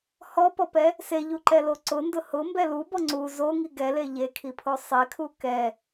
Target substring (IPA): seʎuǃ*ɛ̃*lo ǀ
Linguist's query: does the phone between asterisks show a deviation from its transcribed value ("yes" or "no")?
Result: yes